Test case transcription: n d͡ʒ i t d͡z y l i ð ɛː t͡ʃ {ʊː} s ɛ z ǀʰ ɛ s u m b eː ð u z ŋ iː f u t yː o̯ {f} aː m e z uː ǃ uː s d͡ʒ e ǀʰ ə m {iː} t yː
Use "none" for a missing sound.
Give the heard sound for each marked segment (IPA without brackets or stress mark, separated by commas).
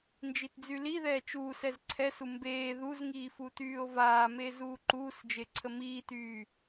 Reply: uː, v, iː